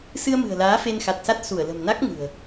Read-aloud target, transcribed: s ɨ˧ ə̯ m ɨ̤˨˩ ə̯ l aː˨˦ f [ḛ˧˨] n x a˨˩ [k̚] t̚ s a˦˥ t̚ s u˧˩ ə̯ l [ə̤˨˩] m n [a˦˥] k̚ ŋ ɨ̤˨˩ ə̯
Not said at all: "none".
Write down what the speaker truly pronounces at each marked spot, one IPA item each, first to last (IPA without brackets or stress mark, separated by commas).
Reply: e˧, none, ə̤˨˩, a˦˥